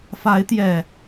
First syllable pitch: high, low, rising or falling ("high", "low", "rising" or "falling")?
rising